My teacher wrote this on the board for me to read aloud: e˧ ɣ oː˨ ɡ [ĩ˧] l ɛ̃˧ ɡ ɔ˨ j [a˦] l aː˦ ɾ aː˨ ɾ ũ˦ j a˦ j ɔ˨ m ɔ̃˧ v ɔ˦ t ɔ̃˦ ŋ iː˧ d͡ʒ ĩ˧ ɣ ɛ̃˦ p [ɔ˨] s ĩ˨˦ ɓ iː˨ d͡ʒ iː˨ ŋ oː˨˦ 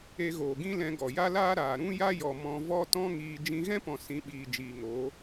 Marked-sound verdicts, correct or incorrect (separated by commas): incorrect, correct, incorrect